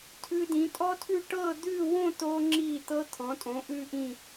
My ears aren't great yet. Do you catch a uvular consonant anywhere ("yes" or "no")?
no